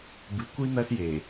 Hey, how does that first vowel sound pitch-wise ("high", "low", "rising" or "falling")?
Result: low